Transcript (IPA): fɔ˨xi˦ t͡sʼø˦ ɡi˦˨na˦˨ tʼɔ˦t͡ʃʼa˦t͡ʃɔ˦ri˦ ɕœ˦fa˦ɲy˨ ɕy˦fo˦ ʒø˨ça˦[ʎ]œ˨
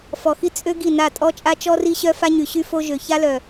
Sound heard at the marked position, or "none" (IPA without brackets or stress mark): l